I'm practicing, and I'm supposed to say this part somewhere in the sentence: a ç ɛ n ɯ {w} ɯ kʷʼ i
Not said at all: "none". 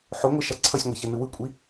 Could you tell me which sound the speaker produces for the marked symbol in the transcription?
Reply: w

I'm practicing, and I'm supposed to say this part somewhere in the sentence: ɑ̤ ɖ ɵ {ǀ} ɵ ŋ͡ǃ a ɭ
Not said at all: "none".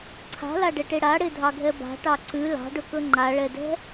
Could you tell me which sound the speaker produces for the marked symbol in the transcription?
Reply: k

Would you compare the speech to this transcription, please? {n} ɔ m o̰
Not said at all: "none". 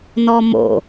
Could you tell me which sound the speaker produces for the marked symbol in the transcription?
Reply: n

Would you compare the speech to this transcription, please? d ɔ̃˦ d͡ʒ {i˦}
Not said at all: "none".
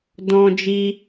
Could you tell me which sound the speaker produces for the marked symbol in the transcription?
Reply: i˦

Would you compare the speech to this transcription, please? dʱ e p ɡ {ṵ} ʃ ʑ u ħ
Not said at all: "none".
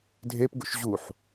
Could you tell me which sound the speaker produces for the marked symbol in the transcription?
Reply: ṵ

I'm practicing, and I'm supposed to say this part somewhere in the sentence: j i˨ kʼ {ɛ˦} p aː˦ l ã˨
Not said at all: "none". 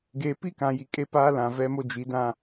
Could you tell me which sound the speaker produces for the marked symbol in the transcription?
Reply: e˦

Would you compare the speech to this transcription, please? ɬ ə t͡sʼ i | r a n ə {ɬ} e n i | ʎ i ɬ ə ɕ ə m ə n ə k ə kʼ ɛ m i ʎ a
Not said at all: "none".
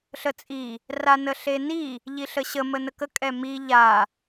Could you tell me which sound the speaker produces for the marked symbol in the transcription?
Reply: ɬ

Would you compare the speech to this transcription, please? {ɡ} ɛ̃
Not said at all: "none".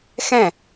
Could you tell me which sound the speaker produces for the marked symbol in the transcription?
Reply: x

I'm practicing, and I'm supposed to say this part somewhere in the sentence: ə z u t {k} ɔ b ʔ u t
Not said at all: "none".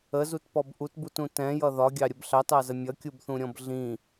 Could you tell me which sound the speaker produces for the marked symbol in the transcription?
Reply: p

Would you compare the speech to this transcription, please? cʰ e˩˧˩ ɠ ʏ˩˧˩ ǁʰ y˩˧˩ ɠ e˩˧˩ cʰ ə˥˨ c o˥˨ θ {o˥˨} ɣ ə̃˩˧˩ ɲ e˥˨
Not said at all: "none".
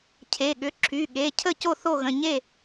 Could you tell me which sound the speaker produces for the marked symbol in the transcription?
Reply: o˥˨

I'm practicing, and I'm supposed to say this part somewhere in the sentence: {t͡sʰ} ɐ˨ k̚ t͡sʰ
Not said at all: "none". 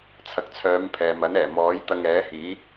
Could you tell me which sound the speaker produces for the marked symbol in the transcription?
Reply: t͡sʰ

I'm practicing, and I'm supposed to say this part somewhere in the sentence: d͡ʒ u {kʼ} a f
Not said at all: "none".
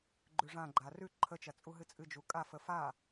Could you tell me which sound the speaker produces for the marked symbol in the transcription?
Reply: kʼ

